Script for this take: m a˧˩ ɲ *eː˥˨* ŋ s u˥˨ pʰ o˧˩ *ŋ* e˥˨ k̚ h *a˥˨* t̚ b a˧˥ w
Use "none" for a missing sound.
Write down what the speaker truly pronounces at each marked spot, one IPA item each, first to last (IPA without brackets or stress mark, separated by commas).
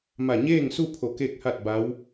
eː˥˨, k, a˥˨